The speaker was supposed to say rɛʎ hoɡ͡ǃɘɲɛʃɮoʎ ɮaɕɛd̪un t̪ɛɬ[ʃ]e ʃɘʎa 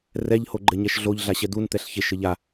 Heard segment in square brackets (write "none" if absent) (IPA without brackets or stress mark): ç